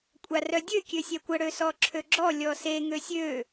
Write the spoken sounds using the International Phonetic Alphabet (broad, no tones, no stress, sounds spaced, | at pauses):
kʷʼ a r œ dʲ ø kʲ ø sʲ œ kʷ ə ɽ ø s ɔ ǁʰ ø ɡ͡ǁ ɔ lʲ ɔ s e ŋ ø sʲ ø